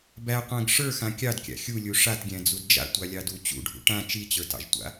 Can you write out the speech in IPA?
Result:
b æ qʷ æ̃ ɡ ʂ ə˞ x ã kʲ ɑ d kʲ a̰ xʲ u lʲ u ʂ a t ɡʲ æ̃ d͡z u d d͡ʒ a̰ tʷ a lʲ ɑ d u t͡ɕ ṵ ɖʱ ṵ ʈ ã t͡ʃ i t͡ɕ ə˞ t ɑ̰ ʒ tʷ a̰

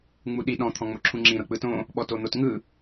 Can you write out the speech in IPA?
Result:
ŋ͡m u ɗ i ɗ ɔ̃ t̪ʰ ɔ̃ ŋ͡m o ǁʰ ũ ŋ͡ǁ ĩ ɾ ɤ k͡p ɯ t õ | ɓ ɔ t o n̪ o t ŋ ɯ

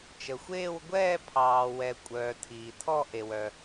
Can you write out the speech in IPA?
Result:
t͡ʃ ə˨ xʷ eː˥˧ w ɡʷ ɛː˥˧ pʰ ɑː˨ w ɛ˨ kʷʼ œː˨ tʰ iː˨ tʰ ɔ˥˧ ʔ e˨ w œ˨

